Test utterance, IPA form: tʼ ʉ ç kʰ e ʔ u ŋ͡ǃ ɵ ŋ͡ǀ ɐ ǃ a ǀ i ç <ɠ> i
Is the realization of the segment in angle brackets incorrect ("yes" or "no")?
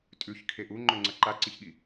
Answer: no